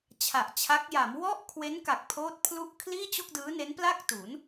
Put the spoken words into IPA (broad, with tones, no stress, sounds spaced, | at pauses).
t͡ɕʰ a˨˩ ʔ t͡ɕʰ a˦˥ k̚ j a˩˦ m w ɔ˥˩ ʔ kʰ w e˦˥ n k a˨˩ k̚ pʰ oː˦˥ t̚ pʰ l u˥˩ ʔ kʰ l iː˥˩ t͡ɕ o˥˩ k̚ d ɯː˦˥ n e˦˥ n p l a˥˩ k̚ t u˩˦ n